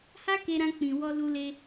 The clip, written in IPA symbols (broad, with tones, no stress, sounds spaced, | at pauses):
h a˦ k e˧ ɾ ã˧ k͡p ĩ˨ w ɔ˧ l u˧ l e˧